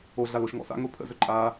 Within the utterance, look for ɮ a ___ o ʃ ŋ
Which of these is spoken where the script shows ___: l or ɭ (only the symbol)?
l